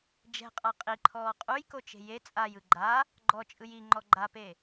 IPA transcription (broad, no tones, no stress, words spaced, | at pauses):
d͡ʒɛ̤qʼa qʼiǃʰɔː qʼujkot͡ʃe̤ je t͡sʼajɯ ɡ͡ǃa | ɡ͡ǃɔt͡ʃʼɯj iŋ͡ǃɔ ɡ͡ǃape